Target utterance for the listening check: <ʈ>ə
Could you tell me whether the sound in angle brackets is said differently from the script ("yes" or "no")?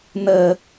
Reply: yes